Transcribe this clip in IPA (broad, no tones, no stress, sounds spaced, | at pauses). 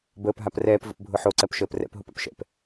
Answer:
b əː p ɦ a p r ɛː p v ə̰ p bʱ ʊ ħ o ǀ ɜ p ʃ əː p r ɛ̰ p ɦ o p a̰ p ʃ ɛ̰ p